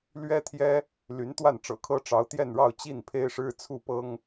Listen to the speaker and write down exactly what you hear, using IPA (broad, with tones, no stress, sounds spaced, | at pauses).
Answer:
l ɥ ɛ˥ t̪ʰ j ɛ˥ | l y˧˥ n t̪ w a˥˩ n ʈ͡ʂ ɤ̰˨˩ kʰ ɤ˥ ʈ͡ʂ ɑ˧˥ ʊ̯ t̪ j ɛ˥˧ n ɻ ɑ˥˧ ʊ̯ t͡ɕ i˥˩ n pʰ e˥ ɪ̯ ʂ ɻ̩˥ t͡sʰ u˥˩ p ɤ˥ ŋ